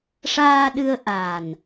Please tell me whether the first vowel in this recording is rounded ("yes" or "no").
no